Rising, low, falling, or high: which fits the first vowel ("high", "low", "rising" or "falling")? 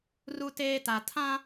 high